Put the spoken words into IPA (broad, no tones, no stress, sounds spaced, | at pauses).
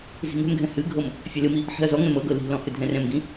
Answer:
z i̤ ŋ ɛ̤ m ɡʱ ɛ̃ h ɨ ɡʱ ɤ m | fʲ ɛ l ɨ m i | ħ i̤ ɐ̯ z ɔ ŋ ɛ̃ m ɤ ɡ ɤ l i̤ l ɔ̃ h ɨ dʱ ɛ̃ r ɛ̃ m ɡ ĩ